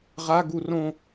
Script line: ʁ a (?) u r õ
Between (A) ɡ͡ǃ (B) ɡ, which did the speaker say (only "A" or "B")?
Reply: B